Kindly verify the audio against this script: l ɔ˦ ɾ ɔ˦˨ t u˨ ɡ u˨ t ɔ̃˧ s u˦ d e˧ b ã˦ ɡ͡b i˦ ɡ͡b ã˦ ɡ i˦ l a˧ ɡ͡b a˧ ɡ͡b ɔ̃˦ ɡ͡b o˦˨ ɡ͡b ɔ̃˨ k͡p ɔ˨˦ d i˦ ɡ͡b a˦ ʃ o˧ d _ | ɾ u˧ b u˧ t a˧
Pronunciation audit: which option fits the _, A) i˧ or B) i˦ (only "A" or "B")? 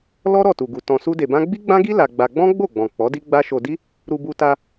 B